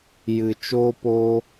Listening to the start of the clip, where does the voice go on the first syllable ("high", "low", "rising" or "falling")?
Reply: low